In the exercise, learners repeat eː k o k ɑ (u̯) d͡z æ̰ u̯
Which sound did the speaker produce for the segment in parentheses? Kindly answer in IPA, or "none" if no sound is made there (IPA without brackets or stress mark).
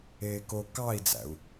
i̯